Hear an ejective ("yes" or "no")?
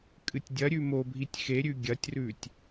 yes